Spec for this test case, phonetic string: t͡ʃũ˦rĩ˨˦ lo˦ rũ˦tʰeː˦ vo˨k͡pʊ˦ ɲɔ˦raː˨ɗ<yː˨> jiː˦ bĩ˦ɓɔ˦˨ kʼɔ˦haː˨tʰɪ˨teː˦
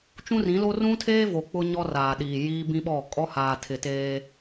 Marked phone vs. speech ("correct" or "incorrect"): incorrect